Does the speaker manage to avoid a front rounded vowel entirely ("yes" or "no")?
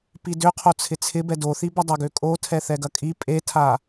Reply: no